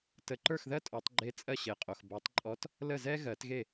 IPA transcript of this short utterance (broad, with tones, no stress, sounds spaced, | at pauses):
t ə˨˩˦ ǃ ə˞˥˩ x ð ɜ˥ tʼ ɔ˨˩˦ tˤ ɡ͡ǃ e˧˥ t͡sʼ ɜ˥˩ ɕ e˨ qʼ o˨ x b ɜ˨˩˦ tˤ ǃʼ ɔ˧˥ t | l ə˥˩ z ɛ˥ ɣ ɜ˨˩˦ t ɣ e˥˩